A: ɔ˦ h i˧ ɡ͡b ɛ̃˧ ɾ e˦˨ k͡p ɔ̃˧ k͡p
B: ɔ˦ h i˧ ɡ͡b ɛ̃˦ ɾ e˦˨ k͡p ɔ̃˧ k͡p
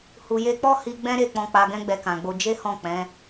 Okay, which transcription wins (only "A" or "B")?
B